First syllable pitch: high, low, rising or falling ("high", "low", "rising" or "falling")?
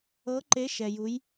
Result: rising